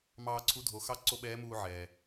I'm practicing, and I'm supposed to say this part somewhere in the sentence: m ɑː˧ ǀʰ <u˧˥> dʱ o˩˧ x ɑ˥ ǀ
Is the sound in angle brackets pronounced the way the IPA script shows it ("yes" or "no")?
yes